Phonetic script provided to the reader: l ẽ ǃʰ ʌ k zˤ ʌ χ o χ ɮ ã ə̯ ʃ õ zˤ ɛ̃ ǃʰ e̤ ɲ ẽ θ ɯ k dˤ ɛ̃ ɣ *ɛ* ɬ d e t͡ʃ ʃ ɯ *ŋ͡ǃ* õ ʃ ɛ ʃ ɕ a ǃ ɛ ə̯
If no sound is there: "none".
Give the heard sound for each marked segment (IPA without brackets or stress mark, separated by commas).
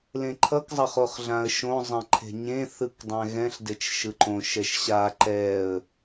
ɛ̃, ǃ